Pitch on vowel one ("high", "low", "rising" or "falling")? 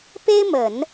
high